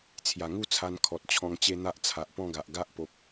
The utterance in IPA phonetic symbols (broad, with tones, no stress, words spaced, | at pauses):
t͡sʰja˨˩ŋu˥˧ t͡sʰa˧nkʰɔ˨t̚ t͡ɕʰɔ̃˧ŋt͡ɕe˦n̪a˦ʔ t͡sʰa˨ʔpɔ̃˥˧ɡa˨ʔ ɡa˦ʔpo˨p̚